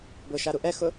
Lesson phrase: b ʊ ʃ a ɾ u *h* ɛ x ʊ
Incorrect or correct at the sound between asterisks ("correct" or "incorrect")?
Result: incorrect